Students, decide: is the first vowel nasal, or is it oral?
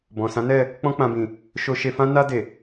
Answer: nasal